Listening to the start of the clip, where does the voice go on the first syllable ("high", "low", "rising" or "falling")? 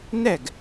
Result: falling